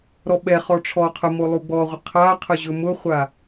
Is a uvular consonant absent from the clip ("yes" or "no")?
no